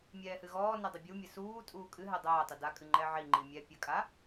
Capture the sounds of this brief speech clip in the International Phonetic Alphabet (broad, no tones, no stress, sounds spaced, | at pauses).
mʲ ɛː h ɨ ɣ ɔː n ɛ dˤ ɘ bʲ u mʲ ɘ s uː tʼ uː kʼ ɨ ɦ ɛ dˤ ɛː tˤ ɘ d a kʼ ɨ ŋ͡ǃ ɛ ʕ i ŋ͡ǃ i mʲ ɛ pʲ ɘ kʼ a